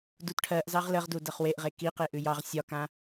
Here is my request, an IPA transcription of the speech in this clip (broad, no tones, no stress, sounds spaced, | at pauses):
d u t ʈʰ ɜ ʔ z ɑ ʁ l ə ʁ d u d ɜ χ w e ʔ ʁ e k i q e ʔ ʉ j ɑ ʁ sʲ ɒ k ã